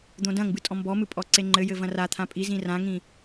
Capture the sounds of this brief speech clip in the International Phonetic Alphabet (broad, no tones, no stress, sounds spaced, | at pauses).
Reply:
d̪ õ d ɐ̃ ŋ b ɨ tʼ ɔ̃ m b ɔ m ɨ pʼ ɔ ǀ e ŋ͡ǃ ɘ j ɘ v ɐ̃ r a t̪ʰ ã pʼ i z ĩ r ã ŋ ĩ